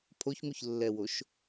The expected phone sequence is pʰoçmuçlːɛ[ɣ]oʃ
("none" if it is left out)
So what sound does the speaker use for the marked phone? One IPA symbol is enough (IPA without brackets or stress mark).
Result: w